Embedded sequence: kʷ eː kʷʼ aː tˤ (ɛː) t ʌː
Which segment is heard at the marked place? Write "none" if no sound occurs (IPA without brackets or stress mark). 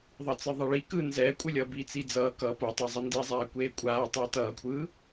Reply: ɛː